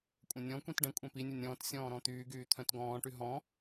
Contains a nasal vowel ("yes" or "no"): yes